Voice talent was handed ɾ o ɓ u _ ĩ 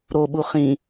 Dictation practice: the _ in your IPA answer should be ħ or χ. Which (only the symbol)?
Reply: χ